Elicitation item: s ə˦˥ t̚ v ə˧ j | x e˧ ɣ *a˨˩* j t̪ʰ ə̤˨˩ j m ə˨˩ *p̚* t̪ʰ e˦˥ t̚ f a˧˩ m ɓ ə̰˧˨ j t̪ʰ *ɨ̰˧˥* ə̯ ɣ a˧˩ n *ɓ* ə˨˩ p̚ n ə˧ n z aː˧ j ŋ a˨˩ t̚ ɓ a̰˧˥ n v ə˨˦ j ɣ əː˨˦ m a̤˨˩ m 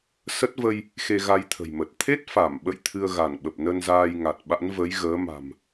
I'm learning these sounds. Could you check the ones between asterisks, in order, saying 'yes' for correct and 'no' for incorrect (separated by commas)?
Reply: no, no, no, yes